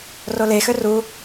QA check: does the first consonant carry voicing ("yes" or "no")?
yes